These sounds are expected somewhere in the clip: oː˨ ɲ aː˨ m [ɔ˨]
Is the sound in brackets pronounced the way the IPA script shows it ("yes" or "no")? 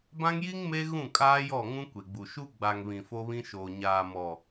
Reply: yes